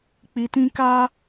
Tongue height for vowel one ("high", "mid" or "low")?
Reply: high